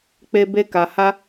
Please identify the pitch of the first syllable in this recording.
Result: high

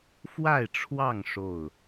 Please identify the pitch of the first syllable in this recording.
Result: falling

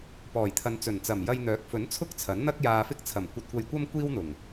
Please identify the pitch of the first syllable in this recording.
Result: low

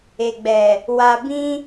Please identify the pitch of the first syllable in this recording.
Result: low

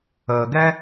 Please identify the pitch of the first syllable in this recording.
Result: low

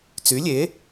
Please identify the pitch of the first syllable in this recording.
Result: rising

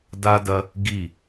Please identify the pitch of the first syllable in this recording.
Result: high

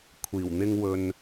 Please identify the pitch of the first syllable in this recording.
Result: low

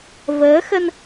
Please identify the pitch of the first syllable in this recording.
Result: rising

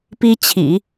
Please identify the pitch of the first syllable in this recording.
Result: high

